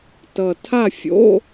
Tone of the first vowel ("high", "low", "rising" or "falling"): low